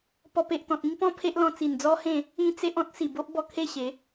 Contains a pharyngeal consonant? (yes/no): no